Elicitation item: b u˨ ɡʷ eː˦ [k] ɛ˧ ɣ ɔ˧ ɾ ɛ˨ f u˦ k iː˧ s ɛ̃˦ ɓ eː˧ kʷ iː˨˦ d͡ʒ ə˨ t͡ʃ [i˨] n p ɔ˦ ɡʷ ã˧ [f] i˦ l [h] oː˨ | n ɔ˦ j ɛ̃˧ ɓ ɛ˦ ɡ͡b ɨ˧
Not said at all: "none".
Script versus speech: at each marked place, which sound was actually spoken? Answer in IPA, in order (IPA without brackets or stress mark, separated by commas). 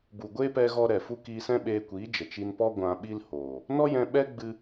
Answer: p, i˧, ɓ, h